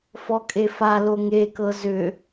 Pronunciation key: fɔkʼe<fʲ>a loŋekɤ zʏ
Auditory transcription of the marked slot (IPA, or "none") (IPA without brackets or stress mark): f